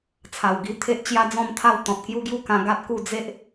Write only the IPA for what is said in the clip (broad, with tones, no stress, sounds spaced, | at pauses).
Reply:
t͡sʰ a˨˩ w ɡ i˧ t̪ʰ e˦ ʔ t͡ɕ j a˦ d͡z ɔ̃˥˧ m t̪ʰ a˥˧ w t̪ ɔ̃˨ t̚ k j u˦ ɡ j u˦ k ã˧ ɡ a˦ t̚ k u˥˧ d͡z e˦ ʔ